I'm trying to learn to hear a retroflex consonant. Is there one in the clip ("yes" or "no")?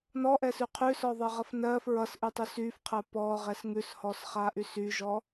no